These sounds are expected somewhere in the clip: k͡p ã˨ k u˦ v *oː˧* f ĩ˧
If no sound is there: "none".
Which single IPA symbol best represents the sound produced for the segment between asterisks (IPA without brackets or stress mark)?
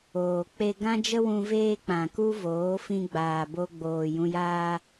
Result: oː˨˦